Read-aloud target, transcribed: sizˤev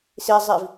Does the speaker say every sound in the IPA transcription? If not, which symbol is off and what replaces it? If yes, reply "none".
e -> i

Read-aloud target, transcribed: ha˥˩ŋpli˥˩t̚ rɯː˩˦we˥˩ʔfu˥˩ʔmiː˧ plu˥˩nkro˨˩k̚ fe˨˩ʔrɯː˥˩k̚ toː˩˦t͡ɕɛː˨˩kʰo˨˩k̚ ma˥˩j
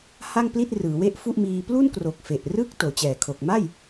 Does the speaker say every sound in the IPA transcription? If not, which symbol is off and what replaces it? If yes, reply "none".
none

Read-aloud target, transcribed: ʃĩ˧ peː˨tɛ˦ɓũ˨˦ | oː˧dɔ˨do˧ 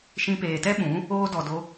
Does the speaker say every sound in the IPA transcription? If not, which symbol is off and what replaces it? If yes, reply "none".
none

